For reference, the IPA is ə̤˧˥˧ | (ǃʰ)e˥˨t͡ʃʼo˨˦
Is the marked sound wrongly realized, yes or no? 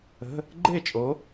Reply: yes